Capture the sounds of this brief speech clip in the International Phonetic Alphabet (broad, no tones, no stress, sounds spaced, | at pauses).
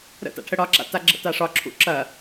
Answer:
ɾ ə̰ t a̰ ʈʰ ə ɽ ɒ ǁ a̰ t a ɡ͡ǁ ə̰ t a ʂ ɒ ǁʰ ṵ ǁ ɐ